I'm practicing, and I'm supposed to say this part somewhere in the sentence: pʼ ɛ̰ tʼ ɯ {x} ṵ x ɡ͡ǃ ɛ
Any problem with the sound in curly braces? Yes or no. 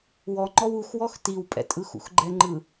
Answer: no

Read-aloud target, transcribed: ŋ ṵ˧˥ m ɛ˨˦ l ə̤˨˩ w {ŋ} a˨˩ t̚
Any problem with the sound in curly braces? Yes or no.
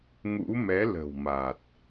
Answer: yes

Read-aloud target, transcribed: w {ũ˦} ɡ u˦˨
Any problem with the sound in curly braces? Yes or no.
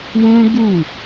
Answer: no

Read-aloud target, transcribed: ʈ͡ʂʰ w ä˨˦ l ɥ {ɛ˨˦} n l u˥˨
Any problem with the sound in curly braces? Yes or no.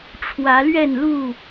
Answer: yes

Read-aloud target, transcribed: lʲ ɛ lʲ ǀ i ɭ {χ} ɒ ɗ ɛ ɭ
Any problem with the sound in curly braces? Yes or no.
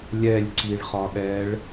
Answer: no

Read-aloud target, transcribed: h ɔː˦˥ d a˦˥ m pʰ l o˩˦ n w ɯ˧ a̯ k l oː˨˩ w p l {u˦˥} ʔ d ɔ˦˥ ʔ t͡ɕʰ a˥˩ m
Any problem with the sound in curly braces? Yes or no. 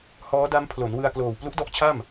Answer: no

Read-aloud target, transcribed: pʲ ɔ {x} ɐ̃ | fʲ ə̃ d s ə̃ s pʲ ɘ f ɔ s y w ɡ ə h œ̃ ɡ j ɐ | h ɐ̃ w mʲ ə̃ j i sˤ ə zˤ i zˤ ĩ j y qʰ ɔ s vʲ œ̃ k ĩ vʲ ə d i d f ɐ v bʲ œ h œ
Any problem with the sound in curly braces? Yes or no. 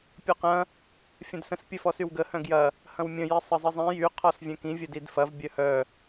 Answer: yes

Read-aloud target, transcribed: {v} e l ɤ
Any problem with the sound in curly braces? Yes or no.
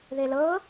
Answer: yes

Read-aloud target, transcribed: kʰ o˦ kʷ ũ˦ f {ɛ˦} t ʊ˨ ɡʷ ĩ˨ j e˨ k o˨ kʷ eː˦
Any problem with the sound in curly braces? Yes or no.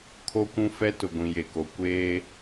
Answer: no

